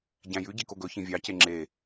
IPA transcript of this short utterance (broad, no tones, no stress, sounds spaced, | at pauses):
ɟ æ̃ j ʉ ɟ i k o ɡ ɵ ç ĩ vʲ ɑ c e ŋ͡ǁ e